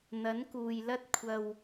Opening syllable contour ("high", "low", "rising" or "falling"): rising